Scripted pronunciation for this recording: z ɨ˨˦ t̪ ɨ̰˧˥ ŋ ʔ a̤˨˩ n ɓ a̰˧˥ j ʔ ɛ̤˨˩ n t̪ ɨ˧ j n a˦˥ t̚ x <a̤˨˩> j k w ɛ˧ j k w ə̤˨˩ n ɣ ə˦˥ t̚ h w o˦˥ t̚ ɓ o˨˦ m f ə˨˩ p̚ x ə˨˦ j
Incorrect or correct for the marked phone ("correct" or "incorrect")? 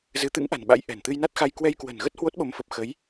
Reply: incorrect